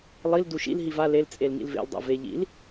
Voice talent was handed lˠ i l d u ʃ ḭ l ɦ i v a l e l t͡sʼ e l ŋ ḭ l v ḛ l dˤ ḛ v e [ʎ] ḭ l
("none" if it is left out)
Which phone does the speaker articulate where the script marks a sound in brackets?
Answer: ʎ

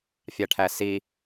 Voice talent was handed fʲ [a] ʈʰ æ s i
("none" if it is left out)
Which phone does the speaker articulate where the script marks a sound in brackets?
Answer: a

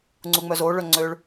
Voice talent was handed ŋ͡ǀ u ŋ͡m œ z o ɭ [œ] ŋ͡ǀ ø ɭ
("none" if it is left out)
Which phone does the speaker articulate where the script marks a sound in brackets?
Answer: œ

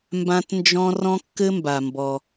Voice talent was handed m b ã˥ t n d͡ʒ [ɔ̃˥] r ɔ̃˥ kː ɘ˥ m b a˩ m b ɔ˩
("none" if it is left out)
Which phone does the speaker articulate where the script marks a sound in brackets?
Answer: ɔ̃˥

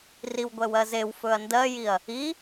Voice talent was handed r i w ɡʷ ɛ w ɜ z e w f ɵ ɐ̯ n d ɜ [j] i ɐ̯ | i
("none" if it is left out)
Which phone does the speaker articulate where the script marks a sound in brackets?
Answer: j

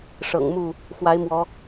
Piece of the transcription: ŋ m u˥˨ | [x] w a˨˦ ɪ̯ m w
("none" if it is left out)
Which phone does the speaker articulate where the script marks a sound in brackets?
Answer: x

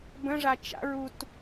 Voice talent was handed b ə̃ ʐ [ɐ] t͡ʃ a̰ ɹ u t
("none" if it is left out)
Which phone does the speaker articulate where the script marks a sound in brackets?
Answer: a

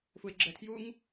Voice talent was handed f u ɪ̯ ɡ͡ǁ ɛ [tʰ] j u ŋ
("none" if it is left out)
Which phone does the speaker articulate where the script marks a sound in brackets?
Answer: tʰ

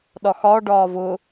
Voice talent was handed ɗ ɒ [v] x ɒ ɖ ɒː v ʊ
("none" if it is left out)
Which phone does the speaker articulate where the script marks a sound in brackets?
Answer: none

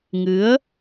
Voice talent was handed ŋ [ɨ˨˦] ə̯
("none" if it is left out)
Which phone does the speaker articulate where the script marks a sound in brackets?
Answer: ɨ˨˦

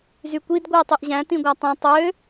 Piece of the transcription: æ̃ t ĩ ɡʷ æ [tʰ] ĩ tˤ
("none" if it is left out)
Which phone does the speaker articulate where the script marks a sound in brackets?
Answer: tˤ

